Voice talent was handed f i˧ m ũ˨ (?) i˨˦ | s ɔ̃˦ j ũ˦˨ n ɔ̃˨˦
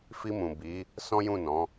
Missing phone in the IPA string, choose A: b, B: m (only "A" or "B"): A